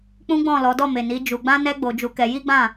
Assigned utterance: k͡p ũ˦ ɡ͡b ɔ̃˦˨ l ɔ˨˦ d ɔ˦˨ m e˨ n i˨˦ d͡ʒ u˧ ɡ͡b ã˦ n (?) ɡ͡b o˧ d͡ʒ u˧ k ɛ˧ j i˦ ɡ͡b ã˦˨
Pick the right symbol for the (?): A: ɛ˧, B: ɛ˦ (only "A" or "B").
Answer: B